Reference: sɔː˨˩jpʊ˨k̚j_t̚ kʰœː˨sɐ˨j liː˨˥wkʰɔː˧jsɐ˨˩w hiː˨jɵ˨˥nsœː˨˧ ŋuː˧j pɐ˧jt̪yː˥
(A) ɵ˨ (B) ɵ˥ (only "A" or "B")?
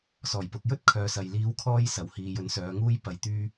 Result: B